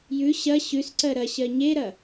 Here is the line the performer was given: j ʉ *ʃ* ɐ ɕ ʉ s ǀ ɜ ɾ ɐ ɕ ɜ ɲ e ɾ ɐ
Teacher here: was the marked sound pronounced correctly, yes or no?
no